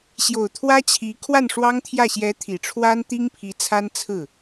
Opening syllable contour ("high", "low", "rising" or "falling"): low